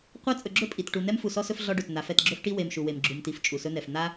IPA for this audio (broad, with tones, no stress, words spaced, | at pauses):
qʷa˦ t͡sʼɵ˨ɡ͡ǁɵ˦ pʼi˨t ʈu˨n̪ɛ˦m fu˨sɔ˦sɵ˦f ɮɔ˦ɖɵ˨t n̪a˨˦f ɛ˨tɡ͡ǁɵ˦fʈi˦ we˨m ʃu˨we˨m ɡ͡ǁu˨mti˨f t͡ʃʼu˨sɵ˦n̪ɛ˨f n̪a˦